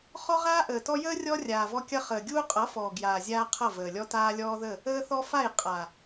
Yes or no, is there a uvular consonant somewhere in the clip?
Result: yes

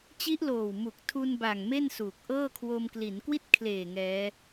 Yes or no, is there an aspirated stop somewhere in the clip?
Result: yes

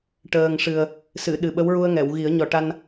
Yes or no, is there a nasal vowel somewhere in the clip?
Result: no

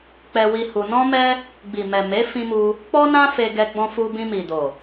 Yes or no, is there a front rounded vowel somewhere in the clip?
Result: no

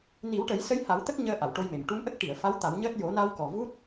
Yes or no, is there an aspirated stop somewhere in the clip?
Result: no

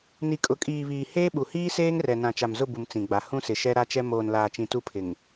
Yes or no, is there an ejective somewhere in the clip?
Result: yes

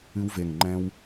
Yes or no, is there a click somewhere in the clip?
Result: yes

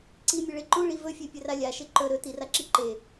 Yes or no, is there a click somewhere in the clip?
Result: yes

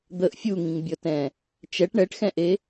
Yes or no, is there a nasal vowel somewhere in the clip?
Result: yes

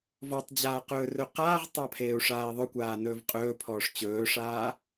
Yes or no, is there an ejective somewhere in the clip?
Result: yes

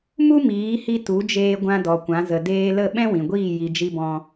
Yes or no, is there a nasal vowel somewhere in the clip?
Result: yes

